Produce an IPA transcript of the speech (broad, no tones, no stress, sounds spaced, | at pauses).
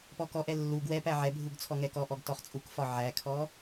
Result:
p ɔ k ɔ ʔ ɛ lː u ɡ w ɛ p æ ʕ ɛ bʱ u ɡ t͡sʰ ɔ ŋ ɛ k ɔ ʔ ɔ ɡ t ɔ χ t͡sʼ u k f ɒ ʕ æ kʰ ɔ